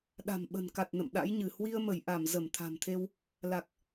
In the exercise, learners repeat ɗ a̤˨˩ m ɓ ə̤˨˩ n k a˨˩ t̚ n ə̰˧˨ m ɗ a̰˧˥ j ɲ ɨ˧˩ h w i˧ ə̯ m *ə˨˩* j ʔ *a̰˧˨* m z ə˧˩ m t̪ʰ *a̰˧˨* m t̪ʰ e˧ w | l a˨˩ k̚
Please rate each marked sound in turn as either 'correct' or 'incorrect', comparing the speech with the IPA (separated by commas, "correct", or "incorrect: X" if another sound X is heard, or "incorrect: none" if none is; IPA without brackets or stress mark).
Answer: incorrect: ə˧˩, incorrect: a˧˩, incorrect: a̤˨˩